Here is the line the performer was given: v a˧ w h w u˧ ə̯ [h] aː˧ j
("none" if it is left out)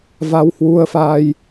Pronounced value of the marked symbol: f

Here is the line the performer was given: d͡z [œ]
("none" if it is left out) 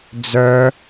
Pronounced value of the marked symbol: œ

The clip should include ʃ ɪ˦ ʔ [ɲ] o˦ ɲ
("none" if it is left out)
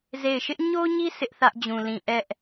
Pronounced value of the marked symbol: ɲ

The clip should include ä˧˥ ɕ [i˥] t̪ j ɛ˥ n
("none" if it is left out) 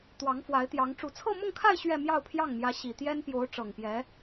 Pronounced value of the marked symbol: i˨˩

